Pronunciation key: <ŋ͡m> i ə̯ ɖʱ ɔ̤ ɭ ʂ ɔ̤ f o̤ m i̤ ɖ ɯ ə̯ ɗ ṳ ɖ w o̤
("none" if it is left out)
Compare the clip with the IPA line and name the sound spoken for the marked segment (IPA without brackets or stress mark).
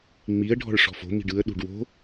ŋ͡m